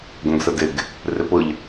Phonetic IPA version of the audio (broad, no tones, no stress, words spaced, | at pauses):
ɡõɡsədɪɡ | rɪpʊʎ